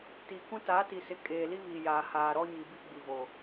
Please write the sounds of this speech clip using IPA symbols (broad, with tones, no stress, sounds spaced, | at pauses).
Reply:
t iː˨ k ũ˦ t a˨˦ t i˨ s ɪ˨ kʼ eː˨ l i˦ β iː˨ j aː˨ h aː˨ ɾ ɔ˦ ɲ i˨ b i˦ ɡ͡b i˨ v o˨